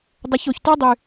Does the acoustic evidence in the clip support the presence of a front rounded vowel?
yes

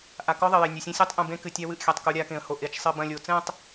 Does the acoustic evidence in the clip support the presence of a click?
no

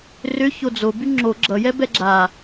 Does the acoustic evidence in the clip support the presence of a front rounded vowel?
yes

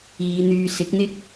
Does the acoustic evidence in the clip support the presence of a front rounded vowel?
yes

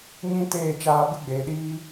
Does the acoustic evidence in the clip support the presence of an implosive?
yes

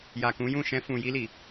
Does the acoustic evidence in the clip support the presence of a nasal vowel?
yes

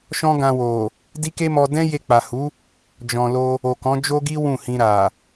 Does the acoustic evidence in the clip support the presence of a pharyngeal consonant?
no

